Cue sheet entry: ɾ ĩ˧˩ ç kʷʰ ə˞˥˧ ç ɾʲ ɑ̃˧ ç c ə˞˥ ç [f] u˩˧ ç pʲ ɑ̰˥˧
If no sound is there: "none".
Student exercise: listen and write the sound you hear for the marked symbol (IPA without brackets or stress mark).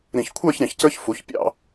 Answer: f